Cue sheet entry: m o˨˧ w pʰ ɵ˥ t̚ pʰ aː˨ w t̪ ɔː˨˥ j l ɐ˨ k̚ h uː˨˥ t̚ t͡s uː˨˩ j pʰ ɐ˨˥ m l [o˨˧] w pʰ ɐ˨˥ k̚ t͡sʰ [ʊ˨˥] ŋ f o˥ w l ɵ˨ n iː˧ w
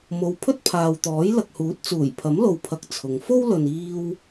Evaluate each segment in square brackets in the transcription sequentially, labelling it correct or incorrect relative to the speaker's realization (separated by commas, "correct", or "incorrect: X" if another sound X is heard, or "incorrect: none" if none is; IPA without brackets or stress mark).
incorrect: o˨, incorrect: ʊ˨˧